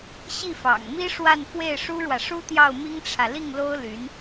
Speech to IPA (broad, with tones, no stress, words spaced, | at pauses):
ɕi˥˩fɑ̰˨˩ŋmi˥ʂwa˥˧n fwe˥˩ɪ̯ʂu˥ɻwä˨ ʂu˥t̪jɑ˥˩ʊ̯mi˥ŋʈ͡ʂʰä˨ li˥˩ŋlo˥ʊ̯ly˧˥n